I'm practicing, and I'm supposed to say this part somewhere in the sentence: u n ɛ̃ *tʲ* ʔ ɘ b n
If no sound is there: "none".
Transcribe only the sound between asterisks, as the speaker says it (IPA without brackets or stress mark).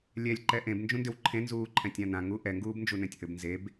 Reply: tʲ